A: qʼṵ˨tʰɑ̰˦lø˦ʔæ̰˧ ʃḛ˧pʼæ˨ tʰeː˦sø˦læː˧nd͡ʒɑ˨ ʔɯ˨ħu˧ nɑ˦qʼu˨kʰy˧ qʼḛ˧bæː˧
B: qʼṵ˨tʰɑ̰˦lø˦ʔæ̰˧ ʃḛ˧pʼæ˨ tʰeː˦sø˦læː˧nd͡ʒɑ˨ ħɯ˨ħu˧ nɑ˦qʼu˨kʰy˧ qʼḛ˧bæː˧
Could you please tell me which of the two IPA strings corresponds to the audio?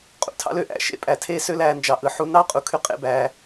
A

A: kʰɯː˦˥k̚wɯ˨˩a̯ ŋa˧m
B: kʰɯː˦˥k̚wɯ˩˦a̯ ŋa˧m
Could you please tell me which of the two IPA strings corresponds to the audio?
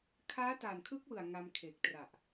A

